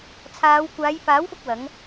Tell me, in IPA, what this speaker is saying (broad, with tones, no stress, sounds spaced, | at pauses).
t͡sʰ aː˨˧ w kʷ aː˨˧ j f aː˨˥ w f ʊ˧ k̚ w ɐ˨˥ ŋ